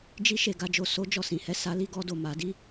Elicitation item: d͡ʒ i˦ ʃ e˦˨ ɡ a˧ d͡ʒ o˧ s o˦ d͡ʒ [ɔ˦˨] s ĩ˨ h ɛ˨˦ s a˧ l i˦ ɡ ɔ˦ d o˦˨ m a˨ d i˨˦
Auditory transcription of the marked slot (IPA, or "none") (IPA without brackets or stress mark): ɔ˦˨